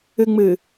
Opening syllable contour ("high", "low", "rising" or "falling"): low